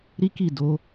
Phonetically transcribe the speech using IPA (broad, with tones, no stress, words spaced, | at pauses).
ɾi˦ki˦˨do˨˦